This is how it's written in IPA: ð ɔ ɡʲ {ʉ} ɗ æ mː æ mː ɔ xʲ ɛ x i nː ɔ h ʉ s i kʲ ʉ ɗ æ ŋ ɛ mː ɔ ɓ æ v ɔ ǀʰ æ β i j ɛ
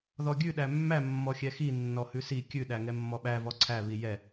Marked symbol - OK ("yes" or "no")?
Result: yes